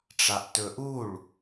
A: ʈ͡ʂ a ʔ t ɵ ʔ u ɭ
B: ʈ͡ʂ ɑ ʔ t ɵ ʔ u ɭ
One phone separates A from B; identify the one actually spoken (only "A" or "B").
A